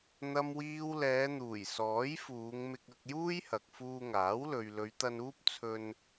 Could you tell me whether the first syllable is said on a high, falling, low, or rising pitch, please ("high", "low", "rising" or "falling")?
low